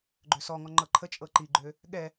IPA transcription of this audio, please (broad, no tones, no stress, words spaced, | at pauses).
ɡ͡ǃøsɔŋɔ ŋ͡ǃɤǃʰət͡ʃʼɤ ǃiɡ͡ǃø | ɠɛ